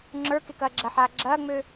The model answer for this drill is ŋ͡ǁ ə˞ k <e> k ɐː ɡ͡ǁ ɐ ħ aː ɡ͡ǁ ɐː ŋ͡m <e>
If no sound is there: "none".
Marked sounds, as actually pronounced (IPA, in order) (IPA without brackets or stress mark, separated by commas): e, ø